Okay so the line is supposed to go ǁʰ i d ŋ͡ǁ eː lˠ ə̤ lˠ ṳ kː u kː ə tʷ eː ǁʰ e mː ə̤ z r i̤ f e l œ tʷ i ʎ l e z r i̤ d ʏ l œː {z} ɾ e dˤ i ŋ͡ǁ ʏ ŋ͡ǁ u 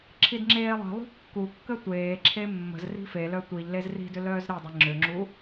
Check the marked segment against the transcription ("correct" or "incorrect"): correct